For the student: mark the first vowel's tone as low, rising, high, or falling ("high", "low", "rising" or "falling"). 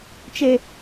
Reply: high